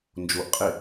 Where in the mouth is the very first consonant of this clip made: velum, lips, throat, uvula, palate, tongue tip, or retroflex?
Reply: tongue tip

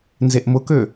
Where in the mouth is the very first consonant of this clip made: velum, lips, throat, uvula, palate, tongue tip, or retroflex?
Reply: tongue tip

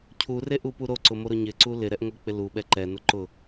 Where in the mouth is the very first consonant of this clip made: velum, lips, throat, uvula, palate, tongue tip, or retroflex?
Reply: palate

